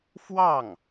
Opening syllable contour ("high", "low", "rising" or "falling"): falling